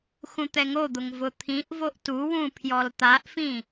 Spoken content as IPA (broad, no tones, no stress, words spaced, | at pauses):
xũt̪ɛŋod̪ʊŋ vʊt̪ʰĩʔvoʔ tuwũ pʰjɔlt̪aʔfĩ